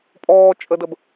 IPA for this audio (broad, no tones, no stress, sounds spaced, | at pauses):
pʼ ɔː t͡ʃʼ ə d ə b